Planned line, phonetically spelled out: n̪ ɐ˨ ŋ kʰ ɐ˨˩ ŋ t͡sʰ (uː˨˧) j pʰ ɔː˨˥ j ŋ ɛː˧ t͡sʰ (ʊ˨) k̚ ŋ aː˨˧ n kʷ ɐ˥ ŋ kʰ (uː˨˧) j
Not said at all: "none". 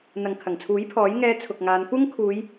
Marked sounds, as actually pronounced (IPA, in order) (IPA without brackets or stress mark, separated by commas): uː˨˥, ʊ˨, uː˨˧